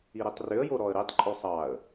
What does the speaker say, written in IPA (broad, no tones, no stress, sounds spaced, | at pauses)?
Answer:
i ɾ i tˤ r ʏ ə̯ j o ɾ ɔ ə̯ ɾ i tˤ ǃʼ o sˤ ɑ ə̯